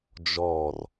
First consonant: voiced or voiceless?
voiced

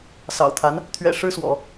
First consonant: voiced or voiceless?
voiceless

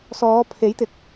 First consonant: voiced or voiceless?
voiceless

